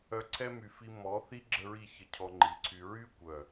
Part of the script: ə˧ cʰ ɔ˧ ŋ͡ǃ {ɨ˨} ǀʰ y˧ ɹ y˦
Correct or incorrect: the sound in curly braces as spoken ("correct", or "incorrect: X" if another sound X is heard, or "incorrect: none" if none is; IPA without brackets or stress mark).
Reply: incorrect: i˨